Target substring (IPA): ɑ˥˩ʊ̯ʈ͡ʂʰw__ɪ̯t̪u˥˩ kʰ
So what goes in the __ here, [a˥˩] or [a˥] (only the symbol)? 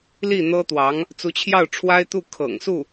a˥